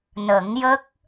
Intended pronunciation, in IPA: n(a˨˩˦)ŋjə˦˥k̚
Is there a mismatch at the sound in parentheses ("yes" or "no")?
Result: yes